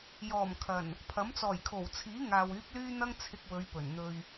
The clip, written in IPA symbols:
j ɔː˨˩ m kʰ ɐ˨˩ n | pʰ ɐ˨˥ m t͡s ɔː˨˩ j kʰ o˨˩ w t͡sʰ iː˨˥ ŋ aː˨ w yː˨˥ p̚ l yː˥ n̪ ɐ˥ ŋ t͡sʰ ɪ˧ k̚ w ɵ˨˧ ɥ p ɵ˨˩ n n̪ ɵ˧ ɥ

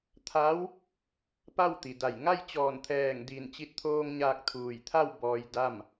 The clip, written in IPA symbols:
t̪ʰ a˧˥ w | p a˥˨ w t̪ i˩ d a˧˩ j ŋ a˥˨ j t͡ɕ ɔː˧˩ n t̪ʰ ɛː˧˩ ŋ d i˧˩ n t͡ɕ i˧ t̚ t̪ʰ oː˧ ŋ ɲ aː˧ k̚ t̪ʰ uː˧˩ j t̪ʰ a˥˨ w b ɔː˧ j d a˥˨ m

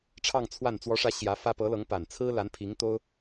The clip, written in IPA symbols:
ʈ͡ʂʰ ɑ˥˧ ŋ t͡sʰ w a˥˩ n t͡s w ɔ˧˥ ʂ ä˧˥ ɕ j ä˧˥ f ä˥ p ɤ˧˥ l ɤ˧˥ ŋ p a˨˩ n t͡sʰ ɹ̩˥ l a˧˥ n pʰ i˧˥ ŋ t̪ o˥ ʊ̯

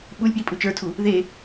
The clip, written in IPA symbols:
ɓ u lʲ p j i pʼ u t͡ʃ ə˞ tʰ u | ð e

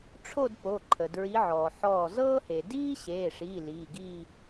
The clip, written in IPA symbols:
ʈ͡ʂʰ o˥˧ d p o˩˧˩ ǃʰ ə˩ d ɹ i˧˥ ʕ ɔː˩ ħ ɔː˧˩ z ɤː˥ h e˩ d iː˥ ɕ eː˩˧˩ ʂ iː˩˧˩ l iː˩˧˩ ɡ iː˥˧

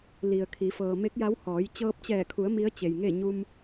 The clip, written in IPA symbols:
l i˩ ə̯ kʰ i˩˧ f ɤː˩ m e˧˥ k̚ j a˧˥ w h ɔː˩˧ j t͡ɕ ɤː˧ p̚ t͡ɕ ɛː˧˩ kʰ u˩˧ ə̯ m i˧˥ ə̯ t͡ɕ e˩ j ŋ e˥˨ ɲ u˧ m

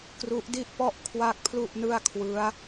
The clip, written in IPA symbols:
k r u˦˥ ʔ d i˥˩ ʔ p ɔ˥˩ ʔ kʰ w a˥˩ k̚ pʰ l u˥˩ ʔ n ɯ˥˩ a̯ kʰ w ɯ˦˥ a̯

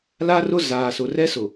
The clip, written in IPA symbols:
l a˦ r ʊ˦ z aː˨ s ʊ˨ r ɛ˦ s ʊ˨

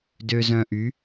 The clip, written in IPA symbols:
d ø˧ z œ̃˧ ʔ y˨˦

